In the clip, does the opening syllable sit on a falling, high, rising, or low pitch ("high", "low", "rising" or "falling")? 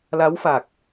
rising